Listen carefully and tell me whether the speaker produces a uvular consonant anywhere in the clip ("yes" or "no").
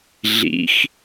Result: no